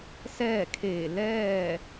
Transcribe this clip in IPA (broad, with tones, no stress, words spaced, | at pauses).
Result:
sɛː˥˨kʰeː˧˩ lɛː˥˨